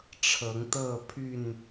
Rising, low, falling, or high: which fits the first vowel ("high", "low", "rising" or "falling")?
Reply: rising